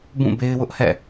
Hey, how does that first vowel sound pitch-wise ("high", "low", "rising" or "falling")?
falling